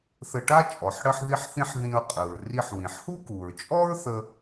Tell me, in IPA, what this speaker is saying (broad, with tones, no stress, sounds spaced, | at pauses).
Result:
θ ə˧ ʈ a˥ t͡ʃʼ ɔ˩ ħ ɽ ə˧ ħ ð i˧ ħ θ ĩ˧ ħ ð ĩ˧ ɹ qʼ ɯ˩ ɹ r i˧ ħ w ĩ˩ ħ h u˥ k u˩ ɹ t͡ʃʼ ɔ˥ ɹ θ ə˧